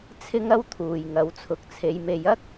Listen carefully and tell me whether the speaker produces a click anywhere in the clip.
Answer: no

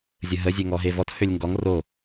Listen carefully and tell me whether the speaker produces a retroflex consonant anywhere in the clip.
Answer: no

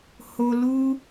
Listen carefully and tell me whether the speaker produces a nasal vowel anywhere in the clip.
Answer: no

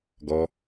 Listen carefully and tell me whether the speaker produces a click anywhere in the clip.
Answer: no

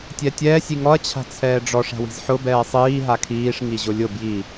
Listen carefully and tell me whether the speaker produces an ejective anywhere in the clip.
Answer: no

